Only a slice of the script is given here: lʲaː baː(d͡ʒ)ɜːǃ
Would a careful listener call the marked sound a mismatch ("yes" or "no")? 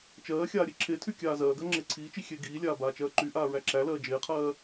yes